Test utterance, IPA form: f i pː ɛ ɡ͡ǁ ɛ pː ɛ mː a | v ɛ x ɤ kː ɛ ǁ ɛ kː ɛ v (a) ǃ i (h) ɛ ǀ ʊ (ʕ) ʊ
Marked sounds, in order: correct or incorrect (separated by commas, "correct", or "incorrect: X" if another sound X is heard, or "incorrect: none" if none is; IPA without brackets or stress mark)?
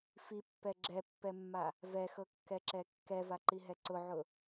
correct, incorrect: ɦ, correct